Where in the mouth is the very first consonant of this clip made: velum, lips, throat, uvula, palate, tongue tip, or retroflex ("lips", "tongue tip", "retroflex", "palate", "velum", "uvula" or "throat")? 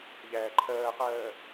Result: palate